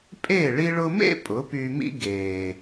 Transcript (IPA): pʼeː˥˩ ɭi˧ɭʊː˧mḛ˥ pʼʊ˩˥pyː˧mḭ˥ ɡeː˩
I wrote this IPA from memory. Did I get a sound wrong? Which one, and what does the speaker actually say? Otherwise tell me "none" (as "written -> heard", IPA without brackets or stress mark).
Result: ʊː˧ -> ʊ˧